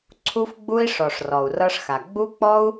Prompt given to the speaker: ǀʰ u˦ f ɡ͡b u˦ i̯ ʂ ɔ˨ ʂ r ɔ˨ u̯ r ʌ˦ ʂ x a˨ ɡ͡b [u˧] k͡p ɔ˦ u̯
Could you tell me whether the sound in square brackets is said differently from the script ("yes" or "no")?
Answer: yes